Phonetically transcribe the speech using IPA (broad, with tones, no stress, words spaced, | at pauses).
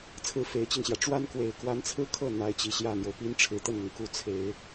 t͡sʰɹ̩˥˩fe˧˥ɪ̯t͡ɕi˧ŋɕjä˩ ʈ͡ʂwa˥nkwe˨˩ɪ̯kwa˧˥nt͡sʰɹ̩˥ kʰɤ˥˩ n̪a˧˥ɪ̯t͡ɕi˨˩ɕjä˥˩n̪jo˩ʊ̯ pi˥nʈ͡ʂʰɻ̩˨˩t̪ə˥˩nn̪ʊ˩ŋ ku˧˥t͡sʰe˨˩˦ɪ̯